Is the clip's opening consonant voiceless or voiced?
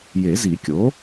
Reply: voiced